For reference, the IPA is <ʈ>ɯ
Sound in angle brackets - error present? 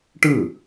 no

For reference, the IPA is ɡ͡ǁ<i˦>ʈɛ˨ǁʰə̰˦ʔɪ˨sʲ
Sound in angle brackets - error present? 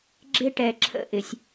yes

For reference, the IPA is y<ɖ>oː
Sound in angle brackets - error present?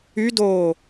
yes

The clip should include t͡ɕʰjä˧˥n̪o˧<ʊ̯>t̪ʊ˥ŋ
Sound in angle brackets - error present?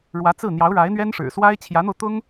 no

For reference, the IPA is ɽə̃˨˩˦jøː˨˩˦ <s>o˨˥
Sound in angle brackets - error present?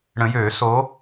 no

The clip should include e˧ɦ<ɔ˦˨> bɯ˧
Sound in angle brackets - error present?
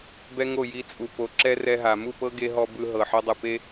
yes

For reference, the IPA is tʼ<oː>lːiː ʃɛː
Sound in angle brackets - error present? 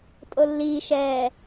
yes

